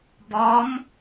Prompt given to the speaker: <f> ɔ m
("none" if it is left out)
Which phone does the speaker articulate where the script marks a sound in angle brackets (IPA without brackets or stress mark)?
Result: b